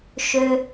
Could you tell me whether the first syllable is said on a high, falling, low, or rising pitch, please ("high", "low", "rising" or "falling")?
low